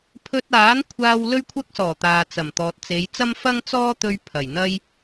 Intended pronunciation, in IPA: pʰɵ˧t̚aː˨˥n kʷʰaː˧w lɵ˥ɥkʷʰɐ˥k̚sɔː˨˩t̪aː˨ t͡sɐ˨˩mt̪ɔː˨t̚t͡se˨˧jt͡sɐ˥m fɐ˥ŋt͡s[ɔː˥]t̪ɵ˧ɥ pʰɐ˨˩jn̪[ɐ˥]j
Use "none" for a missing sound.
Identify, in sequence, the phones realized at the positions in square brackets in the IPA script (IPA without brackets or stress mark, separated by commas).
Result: ɔː˥, ɐ˥